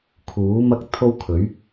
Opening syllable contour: rising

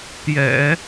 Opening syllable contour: low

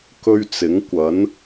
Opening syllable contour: high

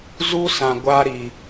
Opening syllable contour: high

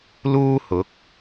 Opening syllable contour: high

